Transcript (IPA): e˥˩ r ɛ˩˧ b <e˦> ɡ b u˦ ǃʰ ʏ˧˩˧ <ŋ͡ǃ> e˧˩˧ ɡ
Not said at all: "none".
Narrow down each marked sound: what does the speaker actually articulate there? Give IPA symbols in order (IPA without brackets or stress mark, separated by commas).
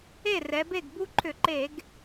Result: e˥˩, ǃ